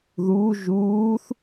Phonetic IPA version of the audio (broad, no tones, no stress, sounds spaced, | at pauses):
ð uː ʒ uː θ